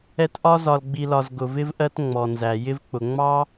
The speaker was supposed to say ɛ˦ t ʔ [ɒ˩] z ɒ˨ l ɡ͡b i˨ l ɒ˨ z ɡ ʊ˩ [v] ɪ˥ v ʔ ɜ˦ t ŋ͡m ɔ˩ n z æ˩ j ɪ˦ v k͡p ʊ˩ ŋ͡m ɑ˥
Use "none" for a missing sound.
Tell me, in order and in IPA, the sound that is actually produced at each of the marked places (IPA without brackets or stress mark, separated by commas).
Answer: ɒ˥, v